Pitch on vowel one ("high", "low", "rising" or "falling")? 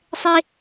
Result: high